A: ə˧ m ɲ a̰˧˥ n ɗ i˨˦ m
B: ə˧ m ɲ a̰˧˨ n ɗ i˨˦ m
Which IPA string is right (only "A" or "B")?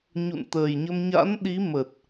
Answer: A